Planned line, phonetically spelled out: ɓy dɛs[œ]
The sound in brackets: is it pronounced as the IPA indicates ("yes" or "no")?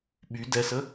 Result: no